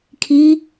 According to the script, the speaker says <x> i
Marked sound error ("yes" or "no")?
yes